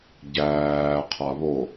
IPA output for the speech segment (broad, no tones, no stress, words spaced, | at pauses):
ɟæː qʰaβo